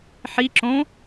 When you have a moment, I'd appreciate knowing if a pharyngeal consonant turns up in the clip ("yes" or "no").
yes